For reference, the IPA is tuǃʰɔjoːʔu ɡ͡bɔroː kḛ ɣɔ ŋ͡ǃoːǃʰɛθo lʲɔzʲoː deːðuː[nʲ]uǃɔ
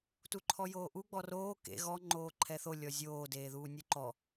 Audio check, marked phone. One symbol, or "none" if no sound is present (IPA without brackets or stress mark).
nʲ